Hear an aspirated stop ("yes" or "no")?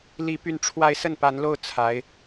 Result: yes